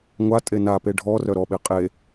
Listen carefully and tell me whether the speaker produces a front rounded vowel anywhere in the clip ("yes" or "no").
yes